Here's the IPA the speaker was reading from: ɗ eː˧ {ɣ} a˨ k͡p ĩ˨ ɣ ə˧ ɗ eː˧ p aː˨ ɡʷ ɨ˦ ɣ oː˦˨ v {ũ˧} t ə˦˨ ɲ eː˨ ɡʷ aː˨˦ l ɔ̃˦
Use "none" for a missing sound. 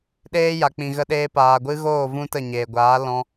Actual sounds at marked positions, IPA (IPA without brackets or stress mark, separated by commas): j, ũ˧